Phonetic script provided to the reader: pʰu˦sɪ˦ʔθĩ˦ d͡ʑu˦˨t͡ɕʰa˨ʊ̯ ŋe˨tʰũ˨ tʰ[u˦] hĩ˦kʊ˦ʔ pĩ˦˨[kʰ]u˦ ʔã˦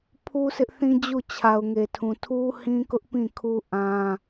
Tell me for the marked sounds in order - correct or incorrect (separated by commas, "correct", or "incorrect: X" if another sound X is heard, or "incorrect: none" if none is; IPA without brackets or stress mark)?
correct, correct